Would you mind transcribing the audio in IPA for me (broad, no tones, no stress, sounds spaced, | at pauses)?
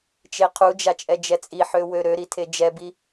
t͡ʃ e qʰ u d͡ʒ a t͡ʃʼ ɛ d͡ʒ ɛ t͡sʼ i ħ ø w ø ɾ ø ɾ i tʰ e d͡ʒ ɛ b i